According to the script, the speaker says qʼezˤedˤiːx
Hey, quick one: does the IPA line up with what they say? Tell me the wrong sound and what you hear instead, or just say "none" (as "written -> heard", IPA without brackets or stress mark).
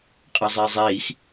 dˤ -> zˤ